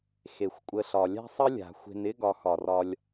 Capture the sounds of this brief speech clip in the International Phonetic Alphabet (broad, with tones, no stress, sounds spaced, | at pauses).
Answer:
x e˩ xʷ kʷʼ ə˨ ɬ ɒ˩ lʲ a̤˥ sˤ ə˥ lʲ a̤˩ xʷ e̤˨ n ɪ˥ ɡ ɒ˨ x ɒ˩ r ɒ˨ lʲ